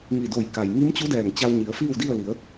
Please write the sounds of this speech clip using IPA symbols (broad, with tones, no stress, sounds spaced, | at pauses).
ŋ i˧˩ d o˧˩ j k a˩ j ŋ i˧˥ m t͡ɕ u˧˥ d ɛː˧˩ ŋ t͡ɕ a˧ w ɲ i˩˧ ə̯ f iː˥˨ w d i˥˨ ə̯ l i˩˧ ə̯